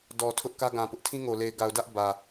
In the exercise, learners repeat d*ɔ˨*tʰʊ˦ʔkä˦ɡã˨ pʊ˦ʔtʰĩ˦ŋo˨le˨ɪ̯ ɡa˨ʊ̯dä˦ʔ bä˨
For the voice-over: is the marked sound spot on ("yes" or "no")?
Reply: yes